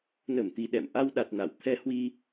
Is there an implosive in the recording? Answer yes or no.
yes